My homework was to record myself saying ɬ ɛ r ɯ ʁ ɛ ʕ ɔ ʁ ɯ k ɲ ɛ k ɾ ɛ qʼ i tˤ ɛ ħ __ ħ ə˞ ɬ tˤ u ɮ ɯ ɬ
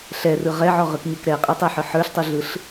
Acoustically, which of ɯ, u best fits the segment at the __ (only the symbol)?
ɯ